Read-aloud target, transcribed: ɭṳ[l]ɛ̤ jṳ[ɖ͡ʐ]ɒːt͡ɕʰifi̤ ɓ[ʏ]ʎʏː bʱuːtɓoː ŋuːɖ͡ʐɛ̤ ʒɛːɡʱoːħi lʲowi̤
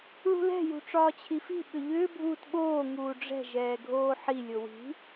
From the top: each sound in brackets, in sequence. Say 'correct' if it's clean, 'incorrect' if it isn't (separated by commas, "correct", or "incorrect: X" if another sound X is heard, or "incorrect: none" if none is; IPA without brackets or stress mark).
correct, incorrect: ʈ͡ʂ, correct